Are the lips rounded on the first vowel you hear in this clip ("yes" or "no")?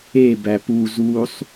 no